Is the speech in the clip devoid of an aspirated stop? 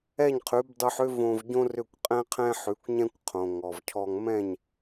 no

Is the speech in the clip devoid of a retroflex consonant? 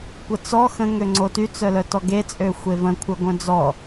yes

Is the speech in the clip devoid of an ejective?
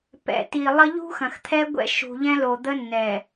yes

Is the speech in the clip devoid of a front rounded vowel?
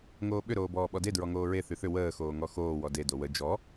no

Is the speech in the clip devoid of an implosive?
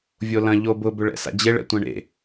yes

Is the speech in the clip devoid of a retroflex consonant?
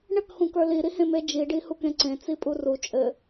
no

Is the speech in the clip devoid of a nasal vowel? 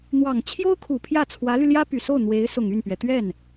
yes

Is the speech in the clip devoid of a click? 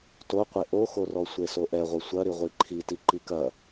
no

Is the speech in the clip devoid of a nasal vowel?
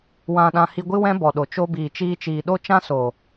no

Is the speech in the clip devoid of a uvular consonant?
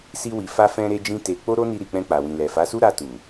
yes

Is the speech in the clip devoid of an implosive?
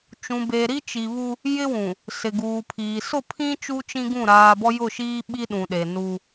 no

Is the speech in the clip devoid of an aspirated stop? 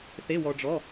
yes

